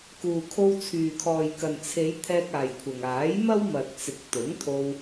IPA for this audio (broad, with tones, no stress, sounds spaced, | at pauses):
k uː˨ kʰ o˧ w t͡sʰ yː˨ kʰ ɔː˨ j k ɐ˨ n t͡sʰ e˨˧ j t̪ʰ ɛː˧ k̚ aː˨ j kʷʰ ɐ˨ ŋ aː˨˥ j m ɐ˥ w m ɐ˨ t̚ t͡s ɪ˨ k̚ t̪ ʊ˨˥ ŋ t̪ʰ o˧ w